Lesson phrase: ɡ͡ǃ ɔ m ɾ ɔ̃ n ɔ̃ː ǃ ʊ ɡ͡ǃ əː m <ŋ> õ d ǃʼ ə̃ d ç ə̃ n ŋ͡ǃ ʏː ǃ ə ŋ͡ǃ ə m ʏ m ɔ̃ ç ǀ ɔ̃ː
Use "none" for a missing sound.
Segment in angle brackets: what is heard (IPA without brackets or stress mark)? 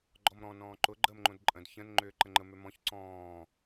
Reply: ŋ͡ǃ